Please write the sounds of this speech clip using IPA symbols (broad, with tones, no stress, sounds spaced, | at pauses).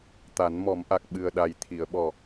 t̪ a˨˩˦ n m ɔ˨˩˦ m ʔ a˨˩ k̚ ɓ ɨ˨˩ ə̯ ɗ a˨˩ j t̪ʰ i˨˩˨ ə̯ ɓ ɔ˨˩